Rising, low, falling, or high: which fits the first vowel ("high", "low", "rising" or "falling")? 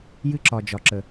high